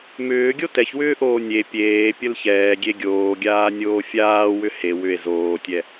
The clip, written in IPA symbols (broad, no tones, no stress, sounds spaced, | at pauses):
m ʏː ɡʲ o t ɛ ç w ʏː ʔ oː nʲ e pʲ eː pʲ ə l ç ɛː ɡʲ e ɡʲ oː ɡʲ aː nʲ oː fʲ aː w ʏ h e w ʏ e̯ z oː tʲ ɛ